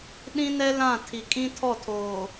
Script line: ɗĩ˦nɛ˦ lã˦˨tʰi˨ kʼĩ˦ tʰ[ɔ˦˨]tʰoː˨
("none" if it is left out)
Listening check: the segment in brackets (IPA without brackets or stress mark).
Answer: ɔ˦˨